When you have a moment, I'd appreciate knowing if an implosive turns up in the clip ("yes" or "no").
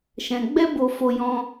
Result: no